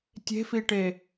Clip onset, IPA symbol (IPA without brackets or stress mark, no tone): tʲ